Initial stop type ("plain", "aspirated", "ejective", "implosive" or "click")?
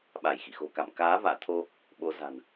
implosive